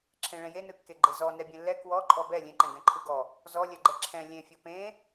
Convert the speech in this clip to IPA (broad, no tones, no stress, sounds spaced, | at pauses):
ǁʰ ẽ ɭ ɛ̃ j e n ɯ kː e ɡ͡ǃ e z ɔ n ɛ bʲ ẽ lː ɛ k w ɔ ǃʼ ɔ b ɛ lʲ ẽ ǃ ɛ̃ ɡ ɛ̃ ǃʰ ɯ ɡ ɔ | z ɔ lʲ ɛ ɡ͡ǃ ɛ ǁʰ ɛ̃ lʲ ẽ fʲ ɔ p ẽ